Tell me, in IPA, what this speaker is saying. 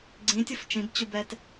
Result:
ɡ͡ǀĩ tʲɯft͡ʃĩbt͡ɕubɛt

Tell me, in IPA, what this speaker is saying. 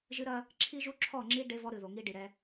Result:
ʒɨ˦ɾɐ˦ | ǁʰi˦ʒu˦ǁʰɔ˦˨ŋ͡ǁi˦ ɖe˦vɔ˦ɾɨ˨ ðo˨ŋi˦ɖi˨ɾɛ˧

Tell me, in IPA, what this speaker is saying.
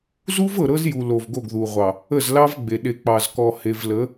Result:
zu˦vɤ˨ ɾɤ˦zju˨ lo˨vɡo˦˨ɡðu˨ʁʷɑ˨ | ə˦˨zlɑ˦vɡ͡be˨ ɗe˨k͡pɑ˨z kɔ˨he˨vlə˨˦

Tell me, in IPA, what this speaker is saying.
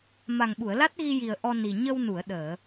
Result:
ma˨˩ŋɓu˨˩˨ə̯la˦˥t̚ɣi˧ ji˨˩ə̯ ʔɔ˧ni˨˩ ɲə˧wnu˨˩˨ə̯ɗəː˨˩˨

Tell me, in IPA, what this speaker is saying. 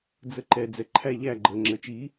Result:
d͡zəǃɛ d͡zɛǃʰæ ʎæ ɡ͡ǃə ŋ͡ǁət͡ʃi

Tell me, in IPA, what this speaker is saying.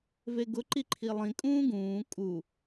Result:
veɡʊǃi ǃʰilˠĩkʼũː ɡũː kʼu

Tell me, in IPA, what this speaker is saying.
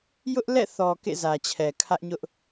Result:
jʊ˦ʔlɛ̰˦˨θɔ˨ kḛ˦˨zä˨t͡ɕʰɛ˨ kʰä˦ʔɲʊ˦ʔ

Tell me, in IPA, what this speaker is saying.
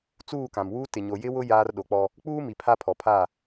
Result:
t͡suː˦˨kã˨mwuː˦ tɪ˨ɲo˨ jɪ˦wʊ˦ jaː˦r ɗo˨˦k͡pɔ˦ | k͡puː˦ mi˨pʰa˦ pʰɔ˨pʰa˦˨

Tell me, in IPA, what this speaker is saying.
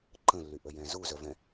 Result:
ǃə̃lːyʔəjɛ̃ zuzœvɛ̃

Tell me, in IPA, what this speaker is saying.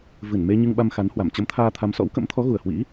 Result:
vɨ˧˩nme˧ ɲɨ˧ŋɓa˧mxa˨˦nhwa˧˩m t͡ɕə˨˦mt̪ʰaː˧t̪ʰa˨˦m sɔ̰˧˥wkə̰˧˥m t̪ʰɔ˨˦ɣu˨˩ə̯hwḭ˧˥

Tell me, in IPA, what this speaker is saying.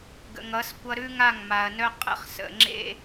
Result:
ɡə̰˨ŋʌ˨˦skʷʌ˦ ɾʉ˦ŋa˦˨ŋ ma˨ɐ̯nœ˦ qʼə̰˦χsə̰˨ŋ͡ǁḛ˦

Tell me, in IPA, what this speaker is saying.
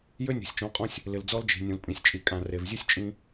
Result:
jø˦nʲo̤˨sʲt͡ʃɔ̃˨˦qʼɔ̃˦sʲ | lɪ˨ld͡zɔ˦ld͡ʒi̤˨ nʲũ˨lpʼĩ˨sʲ t͡ʃʼi˨kʼã˨ re˨vzʲu˦sʲ t͡ʃʼĩ˦

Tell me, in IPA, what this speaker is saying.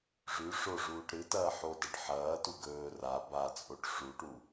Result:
ʐʉ ʂoʐuːʈ ɾɨtɐː ħodɐʈ ħɐːtu ɡɵː ra bat͡sʼoʈ ʂuʈu

